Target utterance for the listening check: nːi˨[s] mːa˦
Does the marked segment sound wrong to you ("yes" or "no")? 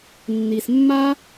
no